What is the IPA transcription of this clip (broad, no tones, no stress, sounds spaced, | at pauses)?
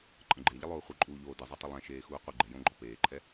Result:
ǃʼ ə̃ ɡ͡ǃ e ʎ ə lˠ oː χʷ ɨ ǃʼ uː ʎ oː d ɨ zˤ o tˤ ə lˠ ɛ̃ ʃ eː x uː qʷ ɨ ɡ͡ǃ ɛ j õ ɡ͡ǃ ɔ p eː ǃʰ ɛ